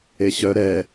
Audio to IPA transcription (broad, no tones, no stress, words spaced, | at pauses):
eɕœ ɾɛ